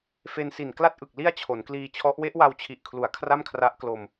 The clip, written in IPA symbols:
f e˧ n s i˨˩ n k l a˥˩ t̚ ʔ ɯ˨˩ k̚ l i˥˩ a̯ t͡ɕʰ o˩˦ n k l iː˧ t͡ɕʰ ɔ˦˥ ʔ w e˦˥ ʔ w a˧ w t͡ɕʰ i˨˩ ʔ kʰ l u˩˦ a̯ kʰ r a˥˩ m kʰ r a˦˥ ʔ k l o˧ m

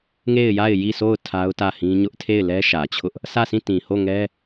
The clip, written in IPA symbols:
ŋ e˦˨ ɪ̯ j a˦˨ ɪ̯ j i˦˨ s o˦˨ ʊ̯ tʰ a˦ ʊ̯ t ä˦˨ h ĩ˦ ɲ ʊ˦ ʔ tʰ e˦˨ ɪ̯ l ɛ˦ ʃ ä˨ t͡ɕʰ ʊ˦ ʔ | s ä˦˨ s ĩ˦˨ t ĩ˨ h o˦˨ ŋ ɛ˦

